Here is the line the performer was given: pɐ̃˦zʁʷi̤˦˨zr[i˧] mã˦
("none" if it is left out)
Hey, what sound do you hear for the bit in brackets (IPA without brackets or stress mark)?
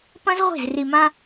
i˧